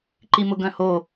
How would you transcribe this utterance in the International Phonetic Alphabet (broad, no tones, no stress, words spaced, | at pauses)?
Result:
ǃimʊɡœ̃ho